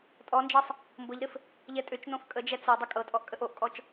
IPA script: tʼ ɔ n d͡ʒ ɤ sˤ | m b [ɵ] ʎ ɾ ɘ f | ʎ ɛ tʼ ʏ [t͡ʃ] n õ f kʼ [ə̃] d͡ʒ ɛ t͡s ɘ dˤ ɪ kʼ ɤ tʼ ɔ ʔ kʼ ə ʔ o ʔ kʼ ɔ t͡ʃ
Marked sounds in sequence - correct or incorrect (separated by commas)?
incorrect, correct, incorrect